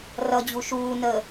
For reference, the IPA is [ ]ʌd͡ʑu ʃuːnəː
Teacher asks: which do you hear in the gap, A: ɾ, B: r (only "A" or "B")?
B